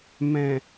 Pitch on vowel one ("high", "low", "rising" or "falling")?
low